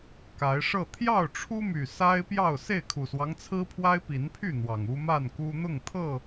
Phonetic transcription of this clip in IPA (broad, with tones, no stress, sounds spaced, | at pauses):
k a˨˦ ɪ̯ ʂ ɤ˥˨ t̪ʰ j ɑ˥˨ ʊ̯ ʈ͡ʂʰ u˦ m y˨˩ s a˦ ɪ̯ p j ɑ˥˨ ʊ̯ s e˥˨ ɪ̯ kʰ u˨˩ s w ɑ˦ ŋ t͡sʰ ɹ̩˦ pʰ w a˦ ɪ̯ p i˨˦ n pʰ y˥˨ n̪ w ɑ˨˩ ŋ u˦ m a˥˨ n k u˦ n̪ ʊ˥˨ ŋ t̪ʰ ɤ˥˨